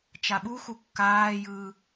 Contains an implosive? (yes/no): yes